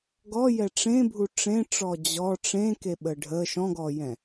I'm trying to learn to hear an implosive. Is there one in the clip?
yes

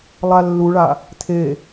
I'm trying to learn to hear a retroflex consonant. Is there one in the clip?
yes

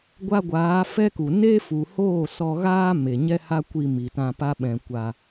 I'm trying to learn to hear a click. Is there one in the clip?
no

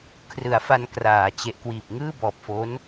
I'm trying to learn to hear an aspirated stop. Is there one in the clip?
yes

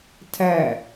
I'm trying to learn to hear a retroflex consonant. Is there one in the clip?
no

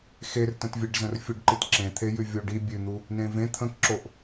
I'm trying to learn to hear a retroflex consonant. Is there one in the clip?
yes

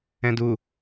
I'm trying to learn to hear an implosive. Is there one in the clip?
no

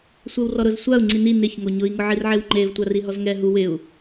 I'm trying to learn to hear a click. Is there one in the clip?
yes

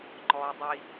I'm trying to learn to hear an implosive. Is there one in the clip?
no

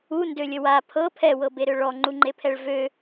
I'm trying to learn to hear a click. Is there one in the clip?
yes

